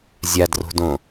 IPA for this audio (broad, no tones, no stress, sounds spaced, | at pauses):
zʲ a d r o̤ d õ